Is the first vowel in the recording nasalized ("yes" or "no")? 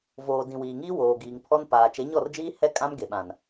no